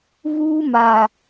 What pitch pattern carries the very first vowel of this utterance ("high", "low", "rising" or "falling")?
high